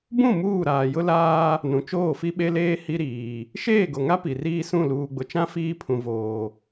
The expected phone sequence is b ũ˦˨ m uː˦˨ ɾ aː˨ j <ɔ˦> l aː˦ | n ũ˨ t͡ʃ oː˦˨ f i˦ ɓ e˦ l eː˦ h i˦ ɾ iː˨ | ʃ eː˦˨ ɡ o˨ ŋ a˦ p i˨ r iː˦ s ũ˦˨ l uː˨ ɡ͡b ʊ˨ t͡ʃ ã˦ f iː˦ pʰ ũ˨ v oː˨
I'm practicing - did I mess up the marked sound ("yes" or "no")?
yes